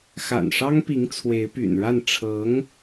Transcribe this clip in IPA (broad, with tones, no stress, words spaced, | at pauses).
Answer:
xa̰˨˩nʂɑ˥ŋpi˧˥ŋ t͡sʰwe˧˥ɪ̯py̰˨˩nɻa˥˩n ʈ͡ʂʰɤ˧˥ŋ